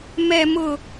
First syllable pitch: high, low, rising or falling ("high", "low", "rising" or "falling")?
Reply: low